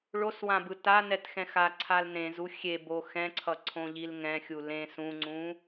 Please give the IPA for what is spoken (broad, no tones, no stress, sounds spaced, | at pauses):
ɭ o s w ã b ɯ t a n ɛ t x ɛ̃ x a ǀʰ a l n ẽ z u xʲ e b o x ɛ̃ ǀʰ ʌ ǀʰ õ ʎ i l ŋ ɛ̃ xʲ u l ẽ s ũ ŋ͡ǀ ũ